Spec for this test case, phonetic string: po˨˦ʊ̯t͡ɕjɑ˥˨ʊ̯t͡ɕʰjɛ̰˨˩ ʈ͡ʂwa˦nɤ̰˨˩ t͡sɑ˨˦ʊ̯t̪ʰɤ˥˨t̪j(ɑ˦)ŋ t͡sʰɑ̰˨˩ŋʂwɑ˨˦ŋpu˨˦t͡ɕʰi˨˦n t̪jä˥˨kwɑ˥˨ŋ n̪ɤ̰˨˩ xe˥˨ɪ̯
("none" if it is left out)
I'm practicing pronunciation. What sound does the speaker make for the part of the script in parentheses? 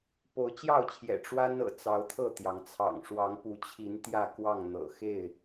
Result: ɑ˩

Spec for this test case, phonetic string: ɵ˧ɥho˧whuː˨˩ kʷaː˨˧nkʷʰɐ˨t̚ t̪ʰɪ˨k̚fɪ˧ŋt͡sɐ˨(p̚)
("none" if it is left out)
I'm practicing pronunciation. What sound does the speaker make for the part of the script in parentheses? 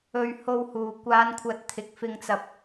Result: p̚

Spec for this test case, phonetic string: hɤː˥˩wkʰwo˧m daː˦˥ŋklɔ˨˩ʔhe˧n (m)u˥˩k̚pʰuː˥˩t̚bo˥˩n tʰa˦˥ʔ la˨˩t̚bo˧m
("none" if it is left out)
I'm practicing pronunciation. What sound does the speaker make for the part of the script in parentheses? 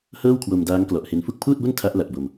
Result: f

